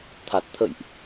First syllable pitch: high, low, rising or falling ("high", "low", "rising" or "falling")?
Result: low